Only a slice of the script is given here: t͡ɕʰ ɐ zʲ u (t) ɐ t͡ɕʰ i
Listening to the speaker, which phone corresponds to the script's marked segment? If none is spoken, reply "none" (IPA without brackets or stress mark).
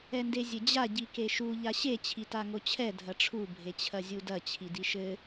d